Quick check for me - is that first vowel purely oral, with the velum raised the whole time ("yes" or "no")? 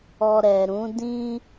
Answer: yes